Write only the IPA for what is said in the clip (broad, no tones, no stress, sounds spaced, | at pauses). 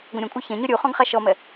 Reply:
ɡʷ ə̃ ɾʲ ə̃ kʷʼ ə˞ ç ɛ̃ ɲ ɔ ɾʲ u χ ɔ̃ ɡ χ a ʃ ɔ m ɛ